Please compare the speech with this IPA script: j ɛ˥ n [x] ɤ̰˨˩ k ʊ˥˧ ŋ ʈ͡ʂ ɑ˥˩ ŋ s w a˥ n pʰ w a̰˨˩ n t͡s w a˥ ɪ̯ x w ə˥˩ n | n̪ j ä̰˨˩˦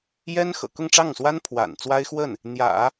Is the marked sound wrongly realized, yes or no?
no